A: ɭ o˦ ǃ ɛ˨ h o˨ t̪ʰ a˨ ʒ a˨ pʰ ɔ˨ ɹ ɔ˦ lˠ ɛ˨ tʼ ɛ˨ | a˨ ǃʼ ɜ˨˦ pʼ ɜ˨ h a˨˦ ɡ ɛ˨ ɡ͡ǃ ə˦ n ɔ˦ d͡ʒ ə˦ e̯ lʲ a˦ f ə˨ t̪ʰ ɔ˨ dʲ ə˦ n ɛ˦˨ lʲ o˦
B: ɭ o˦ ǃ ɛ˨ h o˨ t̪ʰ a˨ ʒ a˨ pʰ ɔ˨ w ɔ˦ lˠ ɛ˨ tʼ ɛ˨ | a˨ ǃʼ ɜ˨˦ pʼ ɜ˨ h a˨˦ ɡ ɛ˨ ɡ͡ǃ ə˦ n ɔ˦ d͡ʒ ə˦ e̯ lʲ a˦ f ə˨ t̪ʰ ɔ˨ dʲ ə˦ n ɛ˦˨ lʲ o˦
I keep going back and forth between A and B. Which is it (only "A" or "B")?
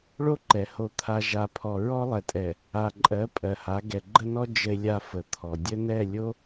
A